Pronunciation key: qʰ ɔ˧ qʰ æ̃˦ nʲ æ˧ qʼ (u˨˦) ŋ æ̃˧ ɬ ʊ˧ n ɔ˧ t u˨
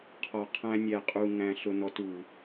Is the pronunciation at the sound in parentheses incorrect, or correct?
incorrect: u˧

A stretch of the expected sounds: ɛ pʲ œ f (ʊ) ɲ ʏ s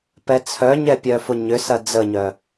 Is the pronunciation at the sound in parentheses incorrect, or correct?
correct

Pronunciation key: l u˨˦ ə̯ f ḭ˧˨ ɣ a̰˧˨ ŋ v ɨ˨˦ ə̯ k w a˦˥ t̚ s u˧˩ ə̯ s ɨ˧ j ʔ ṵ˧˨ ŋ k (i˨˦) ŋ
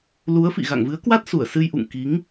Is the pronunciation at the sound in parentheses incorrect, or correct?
correct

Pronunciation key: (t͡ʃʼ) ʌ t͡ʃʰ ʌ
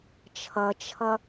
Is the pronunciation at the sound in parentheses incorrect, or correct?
incorrect: t͡ʃʰ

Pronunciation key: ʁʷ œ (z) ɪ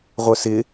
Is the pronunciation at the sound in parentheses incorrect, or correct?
incorrect: s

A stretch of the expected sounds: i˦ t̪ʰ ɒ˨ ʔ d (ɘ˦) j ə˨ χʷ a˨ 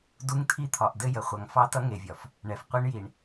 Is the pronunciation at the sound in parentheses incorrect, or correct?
correct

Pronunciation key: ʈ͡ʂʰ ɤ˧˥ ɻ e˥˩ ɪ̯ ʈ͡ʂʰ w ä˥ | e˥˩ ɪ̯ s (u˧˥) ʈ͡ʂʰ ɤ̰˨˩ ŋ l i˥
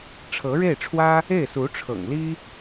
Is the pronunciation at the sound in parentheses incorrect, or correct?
correct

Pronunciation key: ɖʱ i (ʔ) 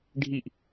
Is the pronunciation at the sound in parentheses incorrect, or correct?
correct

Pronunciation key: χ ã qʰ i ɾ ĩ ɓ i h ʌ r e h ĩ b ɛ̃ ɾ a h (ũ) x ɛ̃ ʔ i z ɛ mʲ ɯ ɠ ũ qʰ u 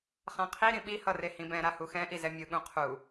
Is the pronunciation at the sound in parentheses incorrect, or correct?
incorrect: u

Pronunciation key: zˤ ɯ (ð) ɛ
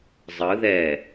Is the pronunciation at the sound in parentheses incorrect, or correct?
correct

